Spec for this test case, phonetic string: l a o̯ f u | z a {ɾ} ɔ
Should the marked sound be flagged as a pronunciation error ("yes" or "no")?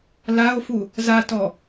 yes